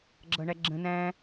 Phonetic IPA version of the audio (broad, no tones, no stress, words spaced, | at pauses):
ɡ͡ǁʌɳæɡ͡ǁə̃ næ̃